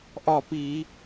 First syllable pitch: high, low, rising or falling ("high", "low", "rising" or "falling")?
falling